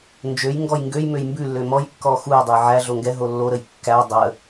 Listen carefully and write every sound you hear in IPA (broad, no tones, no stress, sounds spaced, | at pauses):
n d͡ʒ ø j ŋ ɡ ɔ j ŋ ɡ ø j m ø j m b ʉ lː ø m ɔ j kː ɔ x u j dˤ ø j ʕ æ ɮ o ŋ ɡ ɛ ɦ o lː o ɾ ə j kː æ dˤ ə